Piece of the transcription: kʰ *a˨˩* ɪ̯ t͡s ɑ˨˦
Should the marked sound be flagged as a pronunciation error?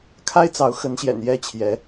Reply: yes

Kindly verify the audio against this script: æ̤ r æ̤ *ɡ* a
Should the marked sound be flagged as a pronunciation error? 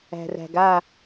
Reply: no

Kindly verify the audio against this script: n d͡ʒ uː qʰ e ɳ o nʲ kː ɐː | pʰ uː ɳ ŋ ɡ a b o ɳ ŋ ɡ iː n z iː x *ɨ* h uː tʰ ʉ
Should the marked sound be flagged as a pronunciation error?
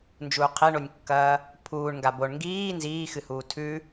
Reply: no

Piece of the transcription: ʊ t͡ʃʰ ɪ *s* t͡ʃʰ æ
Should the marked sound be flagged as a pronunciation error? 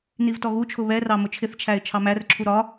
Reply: yes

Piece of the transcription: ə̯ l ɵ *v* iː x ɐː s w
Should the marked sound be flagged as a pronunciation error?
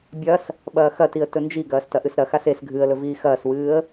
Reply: no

